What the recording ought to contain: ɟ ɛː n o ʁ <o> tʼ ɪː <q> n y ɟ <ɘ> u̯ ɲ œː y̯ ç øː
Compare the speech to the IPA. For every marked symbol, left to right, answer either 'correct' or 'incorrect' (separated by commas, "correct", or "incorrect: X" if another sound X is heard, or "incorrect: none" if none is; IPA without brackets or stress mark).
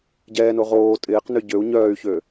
incorrect: oː, correct, incorrect: ø